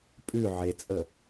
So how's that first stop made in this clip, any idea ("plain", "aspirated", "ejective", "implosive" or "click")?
ejective